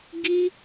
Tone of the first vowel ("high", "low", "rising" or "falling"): high